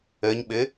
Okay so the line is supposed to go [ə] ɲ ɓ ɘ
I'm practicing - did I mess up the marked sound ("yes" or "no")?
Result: no